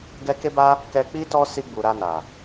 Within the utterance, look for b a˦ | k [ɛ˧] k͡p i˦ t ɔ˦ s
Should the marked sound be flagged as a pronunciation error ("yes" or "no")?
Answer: no